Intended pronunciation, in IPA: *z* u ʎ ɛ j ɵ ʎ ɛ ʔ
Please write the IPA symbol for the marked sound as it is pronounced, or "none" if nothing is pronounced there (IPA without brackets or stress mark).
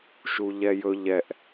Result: ʃ